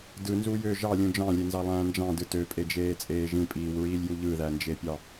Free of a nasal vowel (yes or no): no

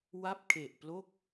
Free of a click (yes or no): yes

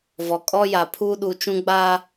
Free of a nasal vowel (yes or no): no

